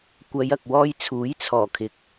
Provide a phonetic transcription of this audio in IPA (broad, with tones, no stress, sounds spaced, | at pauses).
kʷ ɐ˨˧ j ɐ˨ k̚ w ɔː˧ j t͡sʰ uː˨˥ j t͡sʰ ɔː˨˩ kʰ ɪ˨˥ k̚